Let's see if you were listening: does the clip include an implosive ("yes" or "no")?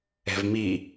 no